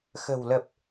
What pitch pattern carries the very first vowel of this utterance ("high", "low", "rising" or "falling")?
low